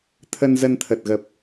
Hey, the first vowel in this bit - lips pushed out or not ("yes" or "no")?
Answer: no